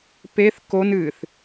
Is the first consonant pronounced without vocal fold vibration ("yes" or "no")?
yes